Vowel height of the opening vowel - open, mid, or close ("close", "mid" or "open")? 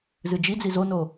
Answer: close